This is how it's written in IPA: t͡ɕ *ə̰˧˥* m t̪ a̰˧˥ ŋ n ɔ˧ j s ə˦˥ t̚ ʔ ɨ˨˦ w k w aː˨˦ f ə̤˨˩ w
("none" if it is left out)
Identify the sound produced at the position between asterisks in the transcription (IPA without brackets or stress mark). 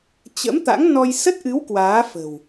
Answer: ə̰˧˥